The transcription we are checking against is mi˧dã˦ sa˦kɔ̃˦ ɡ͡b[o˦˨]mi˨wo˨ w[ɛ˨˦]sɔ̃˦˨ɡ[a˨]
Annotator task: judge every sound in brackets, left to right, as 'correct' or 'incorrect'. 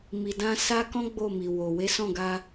correct, incorrect: e˨˦, incorrect: a˧

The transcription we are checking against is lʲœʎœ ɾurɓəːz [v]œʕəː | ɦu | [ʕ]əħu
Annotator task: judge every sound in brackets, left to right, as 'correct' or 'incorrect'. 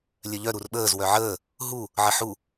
incorrect: w, correct

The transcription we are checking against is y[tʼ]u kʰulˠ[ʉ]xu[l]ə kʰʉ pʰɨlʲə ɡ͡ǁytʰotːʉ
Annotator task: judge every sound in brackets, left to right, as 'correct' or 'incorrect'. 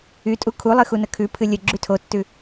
correct, incorrect: ɨ, incorrect: n

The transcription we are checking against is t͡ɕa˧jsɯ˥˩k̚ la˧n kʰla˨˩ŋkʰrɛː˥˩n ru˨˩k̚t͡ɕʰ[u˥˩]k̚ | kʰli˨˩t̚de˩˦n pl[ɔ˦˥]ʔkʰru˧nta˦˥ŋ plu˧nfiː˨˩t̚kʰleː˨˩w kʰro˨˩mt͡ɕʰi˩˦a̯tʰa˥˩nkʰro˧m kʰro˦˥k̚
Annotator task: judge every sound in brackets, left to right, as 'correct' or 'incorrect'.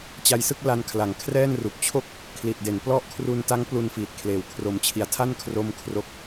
incorrect: o˥˩, correct

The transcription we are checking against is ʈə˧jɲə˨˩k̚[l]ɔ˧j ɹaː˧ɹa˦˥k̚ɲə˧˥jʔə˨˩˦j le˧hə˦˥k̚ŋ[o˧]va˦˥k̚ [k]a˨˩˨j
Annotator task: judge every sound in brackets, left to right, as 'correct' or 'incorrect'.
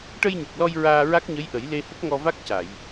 correct, incorrect: ɔ˧, incorrect: c

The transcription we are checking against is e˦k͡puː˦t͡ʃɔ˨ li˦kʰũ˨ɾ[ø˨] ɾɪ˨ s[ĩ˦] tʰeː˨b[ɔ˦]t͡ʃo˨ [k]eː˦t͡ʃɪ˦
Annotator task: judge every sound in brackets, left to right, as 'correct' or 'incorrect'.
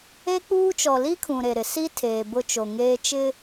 incorrect: e˨, incorrect: i˦, incorrect: ʊ˦, incorrect: ŋ

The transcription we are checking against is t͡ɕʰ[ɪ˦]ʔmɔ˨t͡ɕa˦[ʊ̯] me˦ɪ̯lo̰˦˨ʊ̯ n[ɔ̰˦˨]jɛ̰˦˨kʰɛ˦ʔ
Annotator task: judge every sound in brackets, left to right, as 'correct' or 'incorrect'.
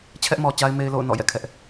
incorrect: ɛ˦, incorrect: ɪ̯, correct

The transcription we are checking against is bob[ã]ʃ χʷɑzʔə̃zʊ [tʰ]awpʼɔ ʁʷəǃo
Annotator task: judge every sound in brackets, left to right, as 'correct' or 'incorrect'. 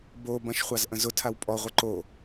incorrect: ɐ̃, correct

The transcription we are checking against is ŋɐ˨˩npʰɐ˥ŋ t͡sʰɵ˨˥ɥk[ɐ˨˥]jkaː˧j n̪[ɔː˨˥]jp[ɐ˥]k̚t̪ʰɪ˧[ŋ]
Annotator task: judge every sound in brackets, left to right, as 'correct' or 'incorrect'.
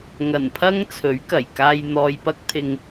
incorrect: ɐ˨˩, incorrect: ɔː˨, correct, correct

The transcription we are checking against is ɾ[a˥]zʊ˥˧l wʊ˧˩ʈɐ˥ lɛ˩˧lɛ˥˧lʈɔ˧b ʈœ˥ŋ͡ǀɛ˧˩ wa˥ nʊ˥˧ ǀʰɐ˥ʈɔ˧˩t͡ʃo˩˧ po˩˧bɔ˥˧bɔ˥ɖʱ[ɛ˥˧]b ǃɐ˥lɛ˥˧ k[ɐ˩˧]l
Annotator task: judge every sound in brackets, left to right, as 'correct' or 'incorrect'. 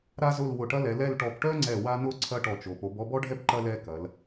correct, incorrect: ɛ˥, correct

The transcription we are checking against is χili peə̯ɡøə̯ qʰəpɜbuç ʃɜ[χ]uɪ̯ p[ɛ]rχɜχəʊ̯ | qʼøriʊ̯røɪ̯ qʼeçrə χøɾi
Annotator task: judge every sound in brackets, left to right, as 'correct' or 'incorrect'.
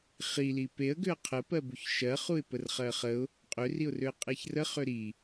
correct, incorrect: ə

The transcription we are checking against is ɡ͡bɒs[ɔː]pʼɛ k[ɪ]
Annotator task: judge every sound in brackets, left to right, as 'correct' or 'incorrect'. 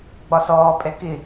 correct, correct

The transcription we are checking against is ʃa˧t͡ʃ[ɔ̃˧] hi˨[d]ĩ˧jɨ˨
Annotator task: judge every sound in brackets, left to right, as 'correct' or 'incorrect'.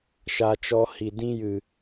incorrect: ɔ˧, correct

